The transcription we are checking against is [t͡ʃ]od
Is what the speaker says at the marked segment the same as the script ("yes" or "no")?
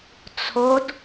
no